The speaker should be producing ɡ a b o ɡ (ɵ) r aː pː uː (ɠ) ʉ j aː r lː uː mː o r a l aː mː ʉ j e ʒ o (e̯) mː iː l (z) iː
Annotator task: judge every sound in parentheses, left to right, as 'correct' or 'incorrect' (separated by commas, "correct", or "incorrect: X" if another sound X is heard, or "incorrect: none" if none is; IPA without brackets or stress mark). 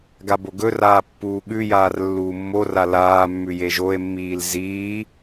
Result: correct, correct, correct, correct